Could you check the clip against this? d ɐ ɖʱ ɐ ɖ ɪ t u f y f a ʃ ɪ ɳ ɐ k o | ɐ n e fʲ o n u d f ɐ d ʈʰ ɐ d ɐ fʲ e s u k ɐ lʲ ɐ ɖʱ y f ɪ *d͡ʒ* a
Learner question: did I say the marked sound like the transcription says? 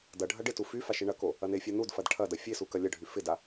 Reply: no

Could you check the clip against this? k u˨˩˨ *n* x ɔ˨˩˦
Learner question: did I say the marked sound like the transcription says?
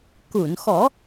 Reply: yes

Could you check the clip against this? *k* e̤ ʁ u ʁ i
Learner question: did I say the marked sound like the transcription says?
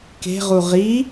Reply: yes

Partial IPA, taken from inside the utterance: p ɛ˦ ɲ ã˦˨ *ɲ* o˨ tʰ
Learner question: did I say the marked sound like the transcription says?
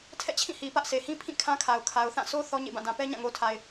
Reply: no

